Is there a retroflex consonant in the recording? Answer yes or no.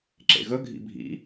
no